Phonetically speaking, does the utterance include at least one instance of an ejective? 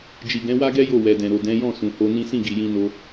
no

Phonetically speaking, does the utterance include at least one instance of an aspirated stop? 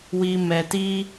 no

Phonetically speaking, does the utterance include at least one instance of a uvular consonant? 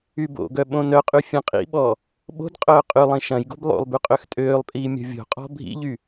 yes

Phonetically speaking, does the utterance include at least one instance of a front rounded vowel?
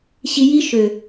yes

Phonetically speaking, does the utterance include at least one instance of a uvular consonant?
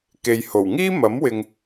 no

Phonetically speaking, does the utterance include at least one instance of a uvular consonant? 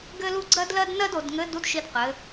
yes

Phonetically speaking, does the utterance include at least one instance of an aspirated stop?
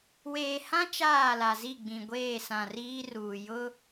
no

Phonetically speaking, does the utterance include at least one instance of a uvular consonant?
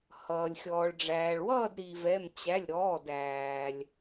no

